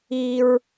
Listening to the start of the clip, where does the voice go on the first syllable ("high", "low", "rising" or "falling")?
high